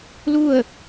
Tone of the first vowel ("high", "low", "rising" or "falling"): falling